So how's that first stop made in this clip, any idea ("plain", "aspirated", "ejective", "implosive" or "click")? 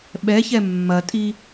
implosive